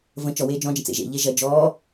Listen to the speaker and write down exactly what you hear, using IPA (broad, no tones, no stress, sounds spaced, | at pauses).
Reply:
v ə̃ t͡ʃ ɔ w eː d͡ʒ ɔ̃ d͡ʒ ə̃ t͡s ḛ ʒ ḛ ʎ e ʒ ɐ d͡ʒ ɔː